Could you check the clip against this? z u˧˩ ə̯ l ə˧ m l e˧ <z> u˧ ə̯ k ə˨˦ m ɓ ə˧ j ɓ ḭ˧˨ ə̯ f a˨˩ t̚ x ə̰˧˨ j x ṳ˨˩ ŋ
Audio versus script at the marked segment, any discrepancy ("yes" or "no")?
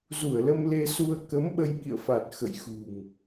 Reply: yes